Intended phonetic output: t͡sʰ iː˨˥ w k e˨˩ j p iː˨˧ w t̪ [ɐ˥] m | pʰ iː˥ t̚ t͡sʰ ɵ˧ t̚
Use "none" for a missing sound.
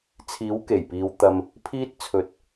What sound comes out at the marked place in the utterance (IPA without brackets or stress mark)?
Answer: ɐ˧